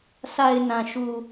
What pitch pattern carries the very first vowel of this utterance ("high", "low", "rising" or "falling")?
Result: low